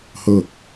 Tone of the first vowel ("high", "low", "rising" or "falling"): falling